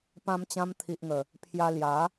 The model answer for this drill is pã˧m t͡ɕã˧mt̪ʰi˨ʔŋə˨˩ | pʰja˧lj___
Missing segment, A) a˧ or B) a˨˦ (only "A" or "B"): B